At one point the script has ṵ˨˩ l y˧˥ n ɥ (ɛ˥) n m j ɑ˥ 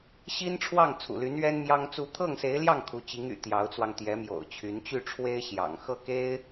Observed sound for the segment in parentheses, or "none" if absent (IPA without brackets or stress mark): ɛ˥